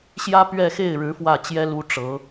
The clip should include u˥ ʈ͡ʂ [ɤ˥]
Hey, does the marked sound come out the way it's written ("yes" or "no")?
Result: no